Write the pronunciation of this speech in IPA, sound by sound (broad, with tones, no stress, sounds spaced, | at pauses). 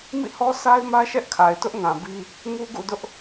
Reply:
m ḭ˦˨ h ɔ˦ sʰ a˦ ɪ̯ m ä˦ ʃ ɛ˦ ʔ kʰ a˨ ɪ̯ t ʊ˦ ʔ ŋ ã˨ b i˦ | ŋ u˦ ɡ ṵ˦˨ d ʊ˦ ʔ